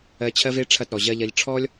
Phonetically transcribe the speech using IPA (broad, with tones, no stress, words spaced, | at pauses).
ɜ˧t͡ɕʰɜ˦ve˦ ʈ͡ʂʰɐ˦˨tɾɔ˨ʑɜ˦ʎɐ˦ʎ ʈ͡ʂʰɔ˦lʲ